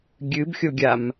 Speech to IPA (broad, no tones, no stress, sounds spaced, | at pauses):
ɡʲ ɨ b xʲ o ɡʲ a m